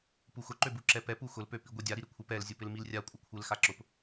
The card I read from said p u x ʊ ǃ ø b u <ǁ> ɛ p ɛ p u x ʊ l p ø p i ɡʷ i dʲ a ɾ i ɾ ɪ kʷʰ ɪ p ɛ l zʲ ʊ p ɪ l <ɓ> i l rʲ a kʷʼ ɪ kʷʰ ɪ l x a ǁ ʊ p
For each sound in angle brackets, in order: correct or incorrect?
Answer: correct, incorrect: m

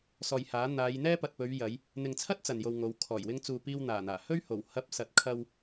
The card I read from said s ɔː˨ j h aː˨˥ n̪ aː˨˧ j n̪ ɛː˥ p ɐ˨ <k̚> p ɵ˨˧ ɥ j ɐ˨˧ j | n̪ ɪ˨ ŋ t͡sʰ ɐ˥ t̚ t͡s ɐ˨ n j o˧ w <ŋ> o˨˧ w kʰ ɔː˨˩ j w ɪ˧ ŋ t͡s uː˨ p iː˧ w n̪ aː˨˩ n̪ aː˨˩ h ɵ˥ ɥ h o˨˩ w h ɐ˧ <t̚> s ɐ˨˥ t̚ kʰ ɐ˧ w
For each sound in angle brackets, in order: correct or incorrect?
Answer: incorrect: t̚, correct, incorrect: p̚

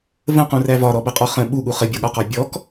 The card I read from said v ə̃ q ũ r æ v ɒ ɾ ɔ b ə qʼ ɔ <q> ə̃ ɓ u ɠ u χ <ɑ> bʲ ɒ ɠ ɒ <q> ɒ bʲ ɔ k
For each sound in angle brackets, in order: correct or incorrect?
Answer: incorrect: χ, incorrect: ə, correct

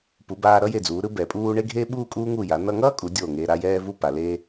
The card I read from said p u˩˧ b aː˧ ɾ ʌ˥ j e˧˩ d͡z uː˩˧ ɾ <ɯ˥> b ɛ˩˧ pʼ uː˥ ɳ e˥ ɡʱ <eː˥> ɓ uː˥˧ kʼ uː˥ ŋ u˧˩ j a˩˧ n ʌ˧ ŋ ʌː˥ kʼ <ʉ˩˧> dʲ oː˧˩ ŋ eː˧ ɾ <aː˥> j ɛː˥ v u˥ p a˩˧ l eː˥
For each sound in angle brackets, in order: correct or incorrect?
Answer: correct, correct, incorrect: u˩˧, correct

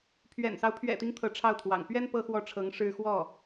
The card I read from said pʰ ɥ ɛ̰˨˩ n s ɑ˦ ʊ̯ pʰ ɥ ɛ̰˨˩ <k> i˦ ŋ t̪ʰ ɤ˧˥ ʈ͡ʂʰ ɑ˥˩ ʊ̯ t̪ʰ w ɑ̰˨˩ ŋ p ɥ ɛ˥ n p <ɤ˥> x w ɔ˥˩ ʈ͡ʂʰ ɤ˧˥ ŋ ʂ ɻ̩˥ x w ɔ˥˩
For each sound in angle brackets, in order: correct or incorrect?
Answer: incorrect: t̪, correct

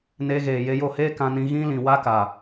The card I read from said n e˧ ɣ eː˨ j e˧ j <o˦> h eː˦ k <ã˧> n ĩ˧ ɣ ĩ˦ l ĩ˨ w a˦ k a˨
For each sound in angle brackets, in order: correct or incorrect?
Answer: incorrect: o˦˨, correct

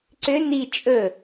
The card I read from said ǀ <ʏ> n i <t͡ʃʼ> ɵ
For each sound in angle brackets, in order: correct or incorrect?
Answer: correct, correct

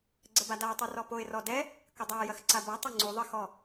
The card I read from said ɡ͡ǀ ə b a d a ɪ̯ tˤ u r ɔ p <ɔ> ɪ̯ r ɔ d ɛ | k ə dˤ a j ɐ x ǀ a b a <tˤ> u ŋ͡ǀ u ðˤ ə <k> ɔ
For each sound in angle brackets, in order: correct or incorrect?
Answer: incorrect: o, correct, incorrect: x

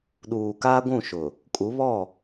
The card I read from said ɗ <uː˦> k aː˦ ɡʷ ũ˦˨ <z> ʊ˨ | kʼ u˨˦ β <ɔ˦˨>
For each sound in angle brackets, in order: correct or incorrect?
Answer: incorrect: uː˨, incorrect: ʃ, correct

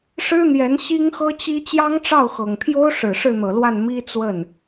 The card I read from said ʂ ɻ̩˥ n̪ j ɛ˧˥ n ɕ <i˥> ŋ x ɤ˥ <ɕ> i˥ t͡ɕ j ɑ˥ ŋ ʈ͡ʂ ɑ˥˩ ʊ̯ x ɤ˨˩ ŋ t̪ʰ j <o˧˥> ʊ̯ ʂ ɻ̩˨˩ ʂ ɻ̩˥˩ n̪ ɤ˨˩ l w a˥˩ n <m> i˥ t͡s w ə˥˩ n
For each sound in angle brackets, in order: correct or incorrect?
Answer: correct, incorrect: t͡ɕ, incorrect: o˥, correct

